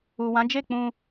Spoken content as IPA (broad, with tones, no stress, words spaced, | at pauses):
u˨wã˨˦d͡ʒe˦˨k͡pũ˧